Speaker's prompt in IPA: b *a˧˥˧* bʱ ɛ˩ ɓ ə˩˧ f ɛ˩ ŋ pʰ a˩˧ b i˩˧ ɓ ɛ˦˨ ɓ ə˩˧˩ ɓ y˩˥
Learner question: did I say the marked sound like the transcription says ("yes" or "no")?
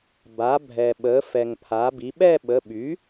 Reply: no